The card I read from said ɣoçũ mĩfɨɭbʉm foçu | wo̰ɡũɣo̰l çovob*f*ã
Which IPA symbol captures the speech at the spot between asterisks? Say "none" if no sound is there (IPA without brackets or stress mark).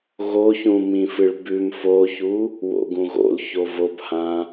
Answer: h